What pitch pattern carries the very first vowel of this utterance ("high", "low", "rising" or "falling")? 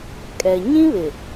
low